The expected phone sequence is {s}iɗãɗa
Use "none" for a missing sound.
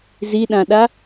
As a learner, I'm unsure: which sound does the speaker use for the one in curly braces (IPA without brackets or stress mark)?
z